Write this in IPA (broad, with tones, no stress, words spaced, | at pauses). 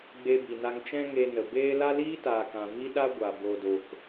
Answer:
ɡ͡be˧bi˨na˧ŋ t͡ʃɛ̃˦ŋe˧nə˨beː˦ la˦liː˦taː˨kã˨ vi˦ɗa˦ɡʷa˨ bo˧do˧k